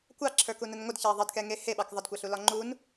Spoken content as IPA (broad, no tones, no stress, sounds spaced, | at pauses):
kʷ ɑ ǁʰ ə˞ k u n ə n ŋʷ ə d ç ɑ ðˤ ə d k ɛ ŋ e h e ɓ ɑ k ðˤ ə d kʷ a ɬ u l ɒ ŋ͡ǃ u n